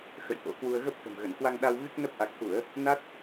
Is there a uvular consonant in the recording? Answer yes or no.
no